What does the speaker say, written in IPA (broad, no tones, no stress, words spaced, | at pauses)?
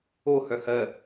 ohœ hɜ